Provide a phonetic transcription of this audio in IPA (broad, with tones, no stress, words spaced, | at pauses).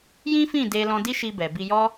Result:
jĩ˦fĩ˦˨de˧ lɔ̃˧di˦ʃi˧ bɛ˨bi˧jɔ˦